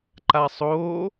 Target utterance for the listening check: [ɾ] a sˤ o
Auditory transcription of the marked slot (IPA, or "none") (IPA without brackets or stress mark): ǃ